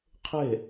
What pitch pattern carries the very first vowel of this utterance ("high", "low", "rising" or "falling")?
falling